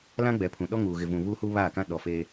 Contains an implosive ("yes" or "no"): yes